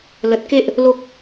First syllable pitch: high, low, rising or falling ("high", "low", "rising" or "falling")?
low